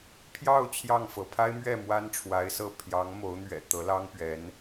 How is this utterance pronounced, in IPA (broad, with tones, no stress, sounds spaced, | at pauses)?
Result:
pʰ j ɑ˥˧ ʊ̯ t͡ɕʰ j ɑ˥˩ ŋ f ɤ˧˥ pʰ a˥ ɪ̯ m ɥ ɛ˥˩ m w a˥ n ʈ͡ʂʰ w a˧˥ ɪ̯ s ɤ˥˩ pʰ j ɑ˧˥ ŋ m o˧˥ ʊ̯ n̪ ɥ ɛ̰˨˩ t̪ ɤ˧˥ l ɑ˥ ŋ p ɥ ɛ˧˥ n